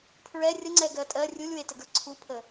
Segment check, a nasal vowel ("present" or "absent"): absent